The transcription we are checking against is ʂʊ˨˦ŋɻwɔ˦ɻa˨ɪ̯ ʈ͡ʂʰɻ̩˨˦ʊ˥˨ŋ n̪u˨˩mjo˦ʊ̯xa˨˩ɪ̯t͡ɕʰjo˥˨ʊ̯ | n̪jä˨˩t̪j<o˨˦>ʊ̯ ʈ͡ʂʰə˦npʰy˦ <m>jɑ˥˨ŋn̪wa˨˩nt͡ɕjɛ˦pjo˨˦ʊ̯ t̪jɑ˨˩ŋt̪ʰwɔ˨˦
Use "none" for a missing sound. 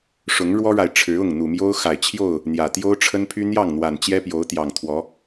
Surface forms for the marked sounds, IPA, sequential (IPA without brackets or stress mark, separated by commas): o˦, n̪